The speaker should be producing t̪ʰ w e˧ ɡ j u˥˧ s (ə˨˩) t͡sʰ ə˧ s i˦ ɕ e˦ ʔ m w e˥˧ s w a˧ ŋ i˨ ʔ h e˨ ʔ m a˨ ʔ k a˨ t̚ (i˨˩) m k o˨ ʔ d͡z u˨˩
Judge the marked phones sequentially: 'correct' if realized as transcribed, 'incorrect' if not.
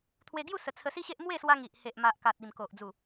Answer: correct, correct

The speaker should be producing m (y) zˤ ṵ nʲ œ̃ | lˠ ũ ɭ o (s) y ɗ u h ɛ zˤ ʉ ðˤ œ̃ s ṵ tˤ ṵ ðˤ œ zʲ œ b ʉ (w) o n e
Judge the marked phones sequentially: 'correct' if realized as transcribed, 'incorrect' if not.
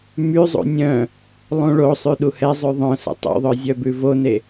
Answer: correct, incorrect: sˤ, incorrect: v

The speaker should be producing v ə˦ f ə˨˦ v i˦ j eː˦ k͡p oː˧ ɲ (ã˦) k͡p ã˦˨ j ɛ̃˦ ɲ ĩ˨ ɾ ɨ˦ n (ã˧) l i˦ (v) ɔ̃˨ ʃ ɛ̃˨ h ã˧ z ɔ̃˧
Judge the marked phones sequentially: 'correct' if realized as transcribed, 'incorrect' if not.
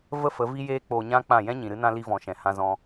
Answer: correct, incorrect: ã˦, correct

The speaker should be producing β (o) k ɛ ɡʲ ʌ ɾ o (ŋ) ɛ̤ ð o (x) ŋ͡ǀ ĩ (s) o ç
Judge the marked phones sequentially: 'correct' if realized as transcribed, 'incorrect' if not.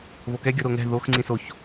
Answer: correct, correct, correct, correct

